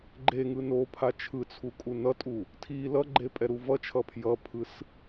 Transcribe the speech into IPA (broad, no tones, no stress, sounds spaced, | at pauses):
ɡ͡ǃ e ŋ ɯ n o pʰ a t͡ʃʰ ɯ t͡sʰ u kʼ u n ʌ tʼ u | tʰ i l ʌ ɡ͡ǃ e pʼ ɛ ɾ u v ʌ t͡ʃʰ ʌ pʰ j ʌ pʰ ɯ s